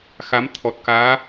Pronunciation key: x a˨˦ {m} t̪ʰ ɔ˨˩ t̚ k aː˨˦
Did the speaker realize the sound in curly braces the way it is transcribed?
yes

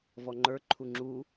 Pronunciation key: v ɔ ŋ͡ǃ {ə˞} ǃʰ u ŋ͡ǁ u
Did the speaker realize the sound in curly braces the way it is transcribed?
yes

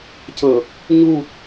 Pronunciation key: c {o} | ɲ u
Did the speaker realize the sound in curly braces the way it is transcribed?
no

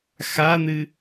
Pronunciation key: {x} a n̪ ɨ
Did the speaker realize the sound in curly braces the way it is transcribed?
yes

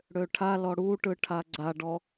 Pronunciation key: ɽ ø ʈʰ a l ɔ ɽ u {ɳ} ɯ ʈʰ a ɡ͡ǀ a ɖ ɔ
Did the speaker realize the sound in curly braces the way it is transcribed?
no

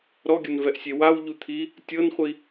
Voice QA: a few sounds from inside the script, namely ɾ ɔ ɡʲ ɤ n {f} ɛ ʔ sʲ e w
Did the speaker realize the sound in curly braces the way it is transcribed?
no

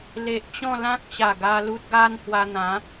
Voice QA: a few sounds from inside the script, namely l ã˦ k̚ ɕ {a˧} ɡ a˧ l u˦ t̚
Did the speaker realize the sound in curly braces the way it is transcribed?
no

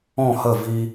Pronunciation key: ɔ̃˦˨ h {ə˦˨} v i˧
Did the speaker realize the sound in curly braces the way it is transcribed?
yes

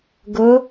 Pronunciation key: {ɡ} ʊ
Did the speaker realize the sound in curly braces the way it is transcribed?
yes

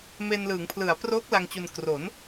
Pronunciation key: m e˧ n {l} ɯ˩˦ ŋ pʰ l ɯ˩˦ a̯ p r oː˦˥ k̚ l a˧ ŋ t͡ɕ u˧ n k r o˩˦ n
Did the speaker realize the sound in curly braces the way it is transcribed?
yes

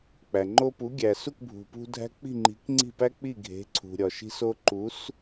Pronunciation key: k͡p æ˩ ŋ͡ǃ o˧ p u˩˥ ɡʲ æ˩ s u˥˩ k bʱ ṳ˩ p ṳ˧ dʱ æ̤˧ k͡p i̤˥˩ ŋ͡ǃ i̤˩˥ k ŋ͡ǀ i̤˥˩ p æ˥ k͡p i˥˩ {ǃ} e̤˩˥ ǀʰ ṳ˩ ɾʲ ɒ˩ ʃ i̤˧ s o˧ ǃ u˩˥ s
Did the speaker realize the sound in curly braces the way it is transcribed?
no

